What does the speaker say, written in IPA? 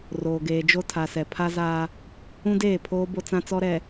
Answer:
roː˨ɡeː˨d͡ʒo˦ tʰa˨sɛ˨ pʰa˦zaː˦ | ũ˦deː˦˨pʰoː˦ bo˦t͡sã˦t͡sɔ˦ɾɛ˨

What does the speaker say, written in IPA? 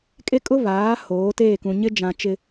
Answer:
kʼe˦kʼʊ˦βaː˨˦ hoː˨˦teː˦˨kũ˨ɲɪ˦ d͡ʒã˨t͡ʃɪ˨

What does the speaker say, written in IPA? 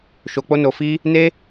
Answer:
ʃo˧k͡po˦no˧fi˦ | ne˦

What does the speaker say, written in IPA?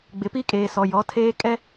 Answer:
ɡ͡bɪ˨pi˦kʼeː˨sɔ˨ jɔ˨˦tʰeː˦kʼɛ˦

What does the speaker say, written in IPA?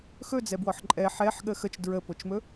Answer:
xɵd͡zɛbwɔħ ǃʼɛ ħɛħɠə xət͡ʃ dɹəpot͡ʃmɵ

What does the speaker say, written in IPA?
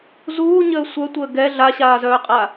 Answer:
zuːɲəː sʷœtʷəː ɡɛ ɮaɕaːzœːqʼa

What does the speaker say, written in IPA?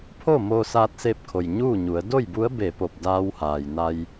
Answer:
pʰo˥˨ moː˧saː˧t̚se˧p̚kʰo˩j ɲuː˥˨ɲu˩˧ə̯ do˥˨jbu˧˥ə̯ be˧˩po˧˩p̚ daː˧whaː˩jna˧j

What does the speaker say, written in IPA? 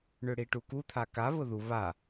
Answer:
ɳʏɽiʈuku t̪ʰaka βʊðu βa

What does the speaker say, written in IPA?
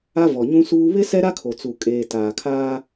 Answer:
a˦vɔ˨ɲũ˦suː˦ βɪ˦ sɛ˦ɾa˦ kʰo˨t͡su˨ kʼeː˨ taː˨kʰaː˦

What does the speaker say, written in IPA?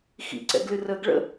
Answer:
xḭǀɛ̰ɡlɨ rəːɡɭə̰

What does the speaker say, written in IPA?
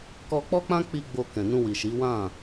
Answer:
kɔ˧k͡pɔ˦k͡pã˦ k͡pi˧ ɡ͡bo˧kɛ̃˨ nũ˧wi˨ʃi˨˦ wã˦˨

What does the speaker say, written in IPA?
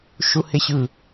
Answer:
ʃuheɕɯ

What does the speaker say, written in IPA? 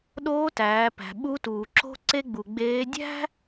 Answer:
ɗoː˧˥tæː˩˧pæ̤˩ ɓu˧˥tuː˩ǁo̤˥ ǀe˧ɡ͡bu˩ ɡ͡beː˧˥ dʲæ̤˥

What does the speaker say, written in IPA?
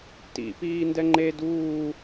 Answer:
tḭ piːndɛŋ͡ǃe duː

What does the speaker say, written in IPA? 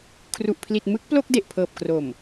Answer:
kʰru˨˩ʔpʰli˨˩t̚ mɯ˦˥k̚ plo˥˩k̚de˨˩ʔpʰɤː˨˩p̚ kro˨˩m

